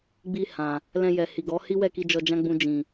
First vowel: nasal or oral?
oral